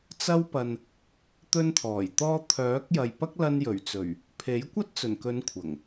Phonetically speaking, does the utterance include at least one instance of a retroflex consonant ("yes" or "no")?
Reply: no